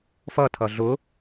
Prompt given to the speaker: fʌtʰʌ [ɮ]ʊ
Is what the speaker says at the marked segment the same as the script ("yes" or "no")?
yes